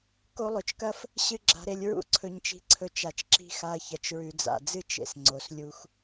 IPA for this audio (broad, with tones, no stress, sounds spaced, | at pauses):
k o˧ lˠ ɵ˨ t͡ʃ k ɐ˦ f | ɕ ɨ˦ ɡ͡ǁ a̤˧ ɾ e˧ lʲ ɹ ṵ˦ ǀʰ ɵ˧ ɲ t͡ʃ i̤˧ ǀʰ ɵ˧ t͡ʃ a˨ t͡ʃ ǁ i̤˦ x a˧ ɐ̯ ç ɐ˨ t͡ʃ ɹ ʉ˨ d͡z a̰˨ d͡z ɨ˦ t͡ʃ ḛ˨ s ŋ͡ǀ o˨ s lʲ u˧ x